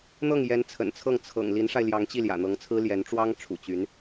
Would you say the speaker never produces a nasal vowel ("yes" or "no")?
yes